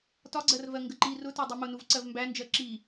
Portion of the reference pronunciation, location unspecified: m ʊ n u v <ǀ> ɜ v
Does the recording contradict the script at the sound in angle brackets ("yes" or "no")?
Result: no